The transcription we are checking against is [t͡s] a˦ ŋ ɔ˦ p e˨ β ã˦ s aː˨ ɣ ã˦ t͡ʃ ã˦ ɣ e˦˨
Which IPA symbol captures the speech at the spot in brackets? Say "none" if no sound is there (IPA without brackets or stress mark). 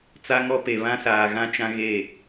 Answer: t͡s